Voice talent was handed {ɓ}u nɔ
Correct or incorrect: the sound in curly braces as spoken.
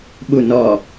correct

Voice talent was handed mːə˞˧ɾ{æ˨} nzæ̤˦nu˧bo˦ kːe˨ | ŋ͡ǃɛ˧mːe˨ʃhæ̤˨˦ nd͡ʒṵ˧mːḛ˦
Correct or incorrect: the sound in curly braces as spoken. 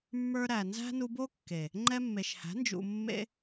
correct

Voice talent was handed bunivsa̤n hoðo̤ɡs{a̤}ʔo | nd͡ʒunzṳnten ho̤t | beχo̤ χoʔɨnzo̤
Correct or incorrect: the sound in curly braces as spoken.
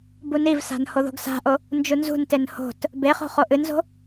correct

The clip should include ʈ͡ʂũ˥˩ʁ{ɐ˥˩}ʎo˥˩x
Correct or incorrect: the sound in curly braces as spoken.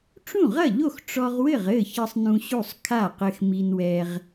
correct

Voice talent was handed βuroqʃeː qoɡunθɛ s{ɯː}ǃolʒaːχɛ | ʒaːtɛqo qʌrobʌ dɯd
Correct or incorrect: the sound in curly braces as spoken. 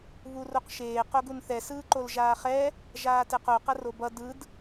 correct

